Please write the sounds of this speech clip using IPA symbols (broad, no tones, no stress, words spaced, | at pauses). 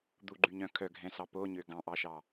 d̪uɡ͡ǃyɲœ̃ kʰœɡʱɛ̃sɑ poɲø ɡɑ̃ʔɑʃɑ